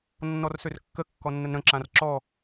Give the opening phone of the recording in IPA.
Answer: nː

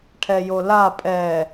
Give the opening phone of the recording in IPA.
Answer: ʈʰ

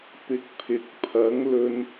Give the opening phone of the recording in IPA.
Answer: p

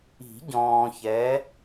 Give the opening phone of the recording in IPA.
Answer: i̤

